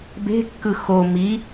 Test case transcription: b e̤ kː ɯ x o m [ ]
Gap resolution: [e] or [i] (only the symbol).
i